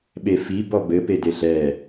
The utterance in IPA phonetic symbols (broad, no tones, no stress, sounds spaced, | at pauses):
ɓ e f i b ɔ b ɘ p e d e ɬ ɛ